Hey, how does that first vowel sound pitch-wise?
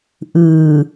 low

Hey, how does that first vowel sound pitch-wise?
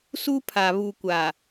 high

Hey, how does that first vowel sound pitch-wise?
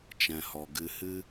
low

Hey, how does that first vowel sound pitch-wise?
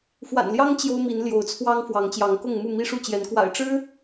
low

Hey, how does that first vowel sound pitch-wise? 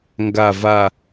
low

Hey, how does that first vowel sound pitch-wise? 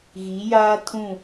rising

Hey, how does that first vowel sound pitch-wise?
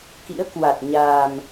rising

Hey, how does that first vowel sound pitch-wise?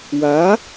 rising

